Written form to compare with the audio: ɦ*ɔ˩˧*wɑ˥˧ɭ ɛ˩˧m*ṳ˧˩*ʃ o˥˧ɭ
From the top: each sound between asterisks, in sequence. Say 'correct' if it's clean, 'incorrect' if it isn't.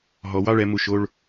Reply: correct, incorrect

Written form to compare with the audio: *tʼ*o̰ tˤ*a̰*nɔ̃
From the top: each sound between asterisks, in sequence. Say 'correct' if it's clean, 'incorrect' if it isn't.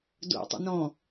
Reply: incorrect, correct

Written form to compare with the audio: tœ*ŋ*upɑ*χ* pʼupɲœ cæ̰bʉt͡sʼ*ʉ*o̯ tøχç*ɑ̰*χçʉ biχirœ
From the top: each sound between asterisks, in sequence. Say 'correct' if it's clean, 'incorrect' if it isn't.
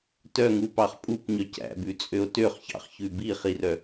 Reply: correct, correct, incorrect, correct

